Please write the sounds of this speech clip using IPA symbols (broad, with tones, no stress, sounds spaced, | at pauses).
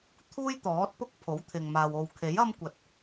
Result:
t̪ʰ uː˥ j t̪ ɔː˨˥ t̚ p ʊ˥ k̚ pʰ o˨˥ w t̪ʰ ɪ˨ ŋ m aː˨ w o˨ w kʰ e˨˥ j ɐ˥ m kʷ ɐ˨ t̚